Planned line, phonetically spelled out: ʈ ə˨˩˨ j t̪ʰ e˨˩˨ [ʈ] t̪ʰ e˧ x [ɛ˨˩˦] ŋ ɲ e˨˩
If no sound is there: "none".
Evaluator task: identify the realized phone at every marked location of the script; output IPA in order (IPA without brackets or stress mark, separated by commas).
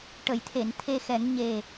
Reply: n, ɛ˨˩˦